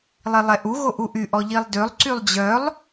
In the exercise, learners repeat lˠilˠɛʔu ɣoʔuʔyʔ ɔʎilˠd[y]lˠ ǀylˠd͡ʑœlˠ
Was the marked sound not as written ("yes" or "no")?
yes